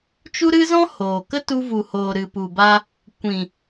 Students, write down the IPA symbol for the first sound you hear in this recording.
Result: t͡ʃ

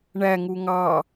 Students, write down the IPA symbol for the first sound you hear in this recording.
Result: ɳ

